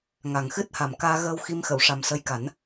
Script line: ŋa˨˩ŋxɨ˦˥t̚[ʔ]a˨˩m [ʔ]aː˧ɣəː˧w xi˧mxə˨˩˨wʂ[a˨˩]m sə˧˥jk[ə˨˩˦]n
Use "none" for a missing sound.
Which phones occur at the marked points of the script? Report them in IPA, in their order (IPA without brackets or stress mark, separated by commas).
h, k, a˨˩, a˨˩˦